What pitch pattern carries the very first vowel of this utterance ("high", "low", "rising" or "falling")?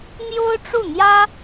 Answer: high